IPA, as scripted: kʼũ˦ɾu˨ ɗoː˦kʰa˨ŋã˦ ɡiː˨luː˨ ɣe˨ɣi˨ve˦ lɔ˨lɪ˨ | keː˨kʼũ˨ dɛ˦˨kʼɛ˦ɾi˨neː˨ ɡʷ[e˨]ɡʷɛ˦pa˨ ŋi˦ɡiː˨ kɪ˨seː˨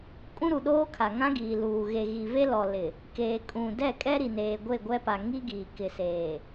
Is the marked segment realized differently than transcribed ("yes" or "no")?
yes